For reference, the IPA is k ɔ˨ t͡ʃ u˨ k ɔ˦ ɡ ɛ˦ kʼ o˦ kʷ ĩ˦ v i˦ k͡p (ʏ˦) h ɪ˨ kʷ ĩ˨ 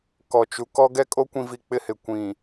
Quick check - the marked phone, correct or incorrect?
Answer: incorrect